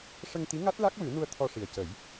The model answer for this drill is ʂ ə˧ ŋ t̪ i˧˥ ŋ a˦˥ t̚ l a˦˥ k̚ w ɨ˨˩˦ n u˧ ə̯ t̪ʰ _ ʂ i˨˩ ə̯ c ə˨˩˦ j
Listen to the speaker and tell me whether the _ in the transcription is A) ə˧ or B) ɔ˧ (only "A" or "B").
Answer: B